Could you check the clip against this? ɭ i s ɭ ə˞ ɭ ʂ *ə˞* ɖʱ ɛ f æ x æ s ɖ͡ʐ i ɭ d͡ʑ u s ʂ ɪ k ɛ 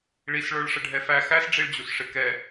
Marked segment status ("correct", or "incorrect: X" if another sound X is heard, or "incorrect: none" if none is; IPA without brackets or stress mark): incorrect: ə